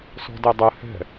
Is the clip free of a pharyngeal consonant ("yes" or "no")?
yes